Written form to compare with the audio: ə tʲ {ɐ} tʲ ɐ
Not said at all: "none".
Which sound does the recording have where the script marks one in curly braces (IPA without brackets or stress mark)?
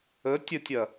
ə